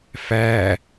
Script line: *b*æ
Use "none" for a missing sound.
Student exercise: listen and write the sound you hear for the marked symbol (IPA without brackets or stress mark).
f